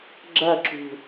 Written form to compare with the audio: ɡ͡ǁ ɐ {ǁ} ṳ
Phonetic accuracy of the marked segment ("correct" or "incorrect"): correct